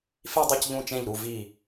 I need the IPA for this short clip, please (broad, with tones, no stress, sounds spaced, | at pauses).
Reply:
f i˥˧ dˤ u˥˩ c ʎ ũ˥˧ t͡ʃ ẽ˥˩ ʎ ɾ u˧˩ v i˧˩